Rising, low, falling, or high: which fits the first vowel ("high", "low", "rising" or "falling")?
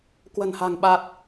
low